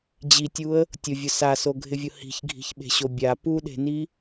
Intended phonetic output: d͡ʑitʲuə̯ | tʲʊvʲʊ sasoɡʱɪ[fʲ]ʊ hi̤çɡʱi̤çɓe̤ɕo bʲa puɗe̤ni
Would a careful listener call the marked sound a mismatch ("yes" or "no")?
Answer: yes